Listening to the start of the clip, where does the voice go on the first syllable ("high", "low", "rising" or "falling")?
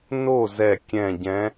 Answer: falling